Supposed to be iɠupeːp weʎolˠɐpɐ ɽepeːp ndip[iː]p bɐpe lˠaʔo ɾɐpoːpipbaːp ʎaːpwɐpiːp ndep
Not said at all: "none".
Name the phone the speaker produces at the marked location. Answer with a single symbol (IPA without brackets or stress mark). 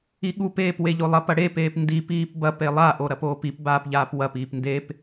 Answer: iː